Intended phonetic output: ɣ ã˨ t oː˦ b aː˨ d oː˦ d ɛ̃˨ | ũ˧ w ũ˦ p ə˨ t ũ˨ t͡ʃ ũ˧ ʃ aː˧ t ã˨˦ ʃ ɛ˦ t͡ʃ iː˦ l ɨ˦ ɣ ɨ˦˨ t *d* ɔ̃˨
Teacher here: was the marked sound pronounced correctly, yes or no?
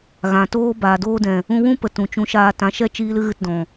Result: yes